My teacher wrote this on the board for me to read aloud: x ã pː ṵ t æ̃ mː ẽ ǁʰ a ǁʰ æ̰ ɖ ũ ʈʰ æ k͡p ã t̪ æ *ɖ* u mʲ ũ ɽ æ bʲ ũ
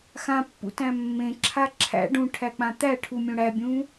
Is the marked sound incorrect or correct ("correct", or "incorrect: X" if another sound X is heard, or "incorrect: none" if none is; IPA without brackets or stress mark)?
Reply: incorrect: ʈʰ